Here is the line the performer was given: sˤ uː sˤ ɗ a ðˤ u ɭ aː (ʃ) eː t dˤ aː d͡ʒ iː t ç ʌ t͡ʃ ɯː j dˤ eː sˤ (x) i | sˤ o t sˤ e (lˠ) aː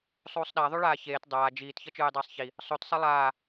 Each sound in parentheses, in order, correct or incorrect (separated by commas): incorrect, incorrect, correct